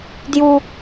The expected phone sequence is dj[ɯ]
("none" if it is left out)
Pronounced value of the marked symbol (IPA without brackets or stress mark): u